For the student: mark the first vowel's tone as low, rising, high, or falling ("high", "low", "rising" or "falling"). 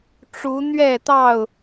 rising